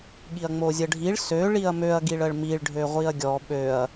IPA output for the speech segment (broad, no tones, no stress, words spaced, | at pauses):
ɠiɐ̯ŋ͡mozʲəɖʱiɭ sø ɭiɐ̯møɐ̯ ɡiɭəɭmiɭ ɖʱøʁʷiɐ̯ɡʲɔ ɓøɐ̯